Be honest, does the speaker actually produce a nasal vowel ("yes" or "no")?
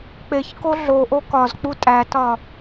no